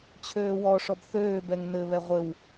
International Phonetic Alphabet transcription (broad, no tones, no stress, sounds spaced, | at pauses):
t͡ɕʰ øː w ɔ ʂ ɔ b θ øː b ɛ ŋ n ɘ β ɛ ʁʷ ɘ w